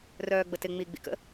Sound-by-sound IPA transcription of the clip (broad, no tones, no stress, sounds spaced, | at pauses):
r œː ɡ͡b ə t ɪ ŋ͡m i ɡ͡b ḭ k ə̰